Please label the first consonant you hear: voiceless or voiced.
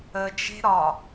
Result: voiced